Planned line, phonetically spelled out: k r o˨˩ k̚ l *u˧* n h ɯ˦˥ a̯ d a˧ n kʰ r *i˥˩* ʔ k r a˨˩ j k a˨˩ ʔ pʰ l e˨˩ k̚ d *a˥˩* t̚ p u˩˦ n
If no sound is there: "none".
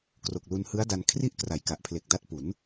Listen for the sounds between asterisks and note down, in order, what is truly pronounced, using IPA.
u˧, i˥˩, a˦˥

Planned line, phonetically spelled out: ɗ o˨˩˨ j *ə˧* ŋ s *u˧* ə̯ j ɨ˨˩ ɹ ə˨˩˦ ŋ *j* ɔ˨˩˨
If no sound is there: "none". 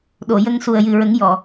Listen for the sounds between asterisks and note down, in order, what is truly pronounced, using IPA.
ə˧, u˨˩, j

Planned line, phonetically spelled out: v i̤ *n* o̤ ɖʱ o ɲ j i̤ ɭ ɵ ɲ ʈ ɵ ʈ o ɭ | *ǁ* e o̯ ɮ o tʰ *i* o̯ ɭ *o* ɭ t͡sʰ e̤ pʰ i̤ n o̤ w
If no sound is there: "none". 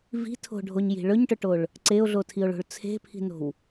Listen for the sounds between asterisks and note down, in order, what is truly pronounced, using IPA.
tʰ, ǀ, i, o̤

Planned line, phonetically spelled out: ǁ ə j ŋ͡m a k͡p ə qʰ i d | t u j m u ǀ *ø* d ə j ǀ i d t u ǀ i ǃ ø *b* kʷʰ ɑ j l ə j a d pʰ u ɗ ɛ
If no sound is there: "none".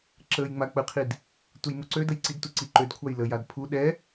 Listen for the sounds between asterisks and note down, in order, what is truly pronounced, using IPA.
ø, d

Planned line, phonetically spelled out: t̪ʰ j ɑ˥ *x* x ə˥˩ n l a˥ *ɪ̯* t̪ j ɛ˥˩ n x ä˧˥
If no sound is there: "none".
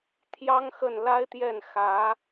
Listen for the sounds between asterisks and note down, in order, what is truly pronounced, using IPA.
ŋ, ɪ̯

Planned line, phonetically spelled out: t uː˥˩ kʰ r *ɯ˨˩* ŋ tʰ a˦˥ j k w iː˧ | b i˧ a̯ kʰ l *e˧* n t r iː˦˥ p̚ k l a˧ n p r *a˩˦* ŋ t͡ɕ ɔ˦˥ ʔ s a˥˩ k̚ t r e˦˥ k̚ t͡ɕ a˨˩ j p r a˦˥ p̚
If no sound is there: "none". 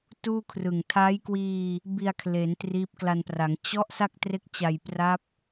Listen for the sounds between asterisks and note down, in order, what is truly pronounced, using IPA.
ɯ˨˩, e˩˦, a˩˦

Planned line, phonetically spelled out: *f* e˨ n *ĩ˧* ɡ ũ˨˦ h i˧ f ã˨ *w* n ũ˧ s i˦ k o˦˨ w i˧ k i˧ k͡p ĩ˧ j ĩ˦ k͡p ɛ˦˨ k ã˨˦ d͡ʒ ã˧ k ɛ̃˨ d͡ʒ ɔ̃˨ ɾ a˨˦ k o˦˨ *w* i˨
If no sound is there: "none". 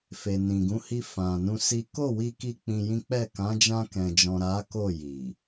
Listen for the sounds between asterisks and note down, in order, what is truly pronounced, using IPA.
f, ĩ˨, none, j

